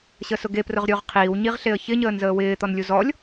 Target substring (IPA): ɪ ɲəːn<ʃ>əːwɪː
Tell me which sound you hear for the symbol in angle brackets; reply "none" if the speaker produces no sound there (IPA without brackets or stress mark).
z